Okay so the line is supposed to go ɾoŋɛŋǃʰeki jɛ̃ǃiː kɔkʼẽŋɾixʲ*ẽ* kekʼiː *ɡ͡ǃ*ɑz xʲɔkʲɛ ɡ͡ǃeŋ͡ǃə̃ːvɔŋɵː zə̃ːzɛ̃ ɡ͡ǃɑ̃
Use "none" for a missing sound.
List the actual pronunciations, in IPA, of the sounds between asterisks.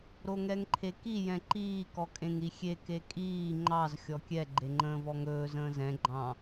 e, ŋ͡ǃ

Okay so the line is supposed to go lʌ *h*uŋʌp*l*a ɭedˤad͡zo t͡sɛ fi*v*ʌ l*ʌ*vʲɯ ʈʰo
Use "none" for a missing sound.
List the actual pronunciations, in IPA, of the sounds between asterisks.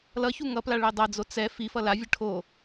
ç, l, f, a

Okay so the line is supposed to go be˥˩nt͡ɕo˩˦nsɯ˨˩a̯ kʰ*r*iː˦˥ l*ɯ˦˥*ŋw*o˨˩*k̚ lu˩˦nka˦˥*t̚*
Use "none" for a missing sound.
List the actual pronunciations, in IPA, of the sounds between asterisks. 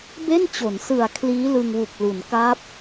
l, ɯ˧, u˨˩, p̚

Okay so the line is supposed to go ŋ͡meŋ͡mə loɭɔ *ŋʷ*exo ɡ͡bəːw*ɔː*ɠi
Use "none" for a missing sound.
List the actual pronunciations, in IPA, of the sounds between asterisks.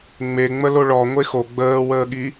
ŋʷ, əː

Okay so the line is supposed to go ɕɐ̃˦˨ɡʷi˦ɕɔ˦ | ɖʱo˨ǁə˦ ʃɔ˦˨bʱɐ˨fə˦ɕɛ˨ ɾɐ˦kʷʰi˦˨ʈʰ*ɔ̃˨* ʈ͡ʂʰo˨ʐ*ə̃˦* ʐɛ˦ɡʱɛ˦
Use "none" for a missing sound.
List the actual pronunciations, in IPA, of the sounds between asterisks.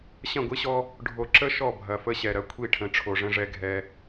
ə̃˨, ə̃˦

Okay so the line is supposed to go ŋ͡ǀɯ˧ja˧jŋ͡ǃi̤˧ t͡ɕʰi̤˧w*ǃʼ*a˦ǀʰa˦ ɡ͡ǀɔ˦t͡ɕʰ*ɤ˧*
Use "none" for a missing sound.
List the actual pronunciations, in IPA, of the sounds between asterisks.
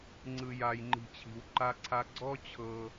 ǃ, ɤ˧

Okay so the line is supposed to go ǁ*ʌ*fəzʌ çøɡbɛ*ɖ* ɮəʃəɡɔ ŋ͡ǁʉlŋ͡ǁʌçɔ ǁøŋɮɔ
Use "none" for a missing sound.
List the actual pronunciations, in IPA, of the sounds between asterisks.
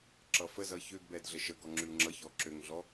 ʌ, d

